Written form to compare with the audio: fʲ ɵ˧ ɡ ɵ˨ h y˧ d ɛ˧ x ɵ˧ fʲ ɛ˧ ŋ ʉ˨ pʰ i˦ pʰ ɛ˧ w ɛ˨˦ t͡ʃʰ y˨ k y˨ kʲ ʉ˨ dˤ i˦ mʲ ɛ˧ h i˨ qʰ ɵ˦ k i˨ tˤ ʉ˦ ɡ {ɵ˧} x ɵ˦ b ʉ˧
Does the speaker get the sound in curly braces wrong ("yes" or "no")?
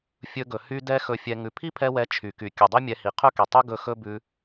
no